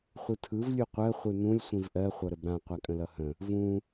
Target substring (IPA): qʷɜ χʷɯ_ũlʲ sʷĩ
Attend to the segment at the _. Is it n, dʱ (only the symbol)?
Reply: n